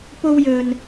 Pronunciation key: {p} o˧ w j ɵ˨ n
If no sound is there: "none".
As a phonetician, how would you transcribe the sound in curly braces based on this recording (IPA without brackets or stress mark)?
p